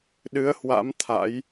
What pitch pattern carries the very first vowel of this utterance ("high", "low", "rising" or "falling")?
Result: rising